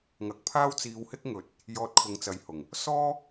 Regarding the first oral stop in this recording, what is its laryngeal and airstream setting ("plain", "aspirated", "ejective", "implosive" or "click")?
plain